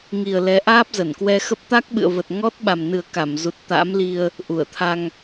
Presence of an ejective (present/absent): absent